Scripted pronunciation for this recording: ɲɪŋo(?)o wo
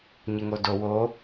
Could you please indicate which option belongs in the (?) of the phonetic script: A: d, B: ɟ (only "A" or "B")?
A